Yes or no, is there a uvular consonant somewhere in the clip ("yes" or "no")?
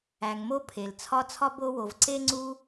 no